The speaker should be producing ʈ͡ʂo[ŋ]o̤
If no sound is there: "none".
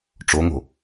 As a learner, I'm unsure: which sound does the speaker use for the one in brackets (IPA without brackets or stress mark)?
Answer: ŋ